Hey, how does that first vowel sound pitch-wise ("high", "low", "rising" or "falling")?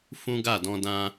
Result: high